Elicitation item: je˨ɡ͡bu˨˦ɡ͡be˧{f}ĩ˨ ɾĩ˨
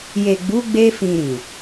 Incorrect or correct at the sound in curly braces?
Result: correct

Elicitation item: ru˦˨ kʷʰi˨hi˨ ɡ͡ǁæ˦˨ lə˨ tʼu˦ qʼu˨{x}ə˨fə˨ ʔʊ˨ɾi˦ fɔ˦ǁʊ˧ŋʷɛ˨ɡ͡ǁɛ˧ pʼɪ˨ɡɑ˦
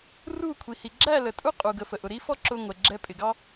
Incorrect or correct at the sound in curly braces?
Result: incorrect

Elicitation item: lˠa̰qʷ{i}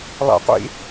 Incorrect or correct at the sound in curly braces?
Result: incorrect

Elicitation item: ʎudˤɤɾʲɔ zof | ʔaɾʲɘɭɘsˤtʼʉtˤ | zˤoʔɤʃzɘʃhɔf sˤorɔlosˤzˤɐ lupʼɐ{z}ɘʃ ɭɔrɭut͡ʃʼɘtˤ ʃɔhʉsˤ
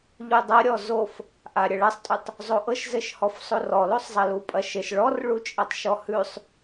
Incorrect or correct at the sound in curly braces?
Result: incorrect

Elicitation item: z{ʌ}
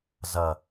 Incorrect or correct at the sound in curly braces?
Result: correct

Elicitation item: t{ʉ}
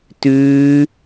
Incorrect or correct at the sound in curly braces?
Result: incorrect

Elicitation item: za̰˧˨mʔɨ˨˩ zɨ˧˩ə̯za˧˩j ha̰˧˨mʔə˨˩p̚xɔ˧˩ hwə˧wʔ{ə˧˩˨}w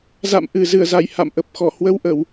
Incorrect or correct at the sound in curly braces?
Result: correct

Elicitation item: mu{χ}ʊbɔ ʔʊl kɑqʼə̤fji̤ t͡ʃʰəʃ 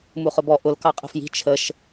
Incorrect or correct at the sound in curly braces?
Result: correct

